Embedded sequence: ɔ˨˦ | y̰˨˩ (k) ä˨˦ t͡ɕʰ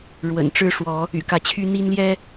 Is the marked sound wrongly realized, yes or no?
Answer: no